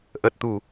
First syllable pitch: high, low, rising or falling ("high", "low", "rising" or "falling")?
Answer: low